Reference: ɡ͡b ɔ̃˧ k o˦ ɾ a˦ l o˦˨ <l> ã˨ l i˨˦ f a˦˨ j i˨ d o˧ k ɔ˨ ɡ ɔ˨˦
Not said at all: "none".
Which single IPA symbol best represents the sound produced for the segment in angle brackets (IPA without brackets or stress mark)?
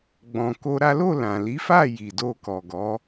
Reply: l